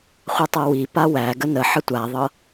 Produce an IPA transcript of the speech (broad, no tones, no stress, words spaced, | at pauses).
χʷetˤɤwi pawæ ɡənə ħətʷaðˤɤ